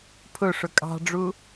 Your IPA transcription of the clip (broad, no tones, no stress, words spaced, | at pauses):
pʰʊ ʂʊkʼɑ̤ɖ͡ʐu